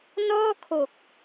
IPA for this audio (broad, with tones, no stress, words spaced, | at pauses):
nɔː˥˩kʰo˨˩k̚